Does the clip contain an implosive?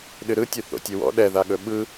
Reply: yes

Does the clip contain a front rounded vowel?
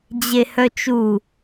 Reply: yes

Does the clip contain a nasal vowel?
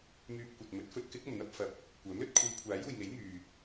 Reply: no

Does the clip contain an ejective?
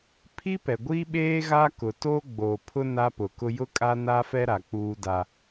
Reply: yes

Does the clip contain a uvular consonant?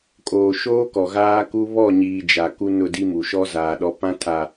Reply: no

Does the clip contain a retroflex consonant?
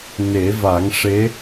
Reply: yes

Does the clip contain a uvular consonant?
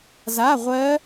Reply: yes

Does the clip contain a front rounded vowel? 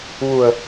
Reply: no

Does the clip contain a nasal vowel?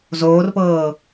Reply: no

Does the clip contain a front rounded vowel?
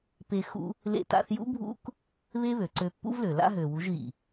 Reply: yes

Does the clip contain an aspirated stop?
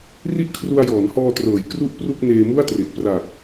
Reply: yes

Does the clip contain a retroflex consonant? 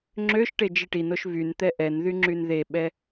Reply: yes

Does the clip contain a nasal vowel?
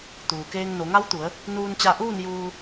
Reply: no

